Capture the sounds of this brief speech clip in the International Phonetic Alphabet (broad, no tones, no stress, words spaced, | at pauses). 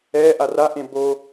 ɛ ʔaraʔẽ bo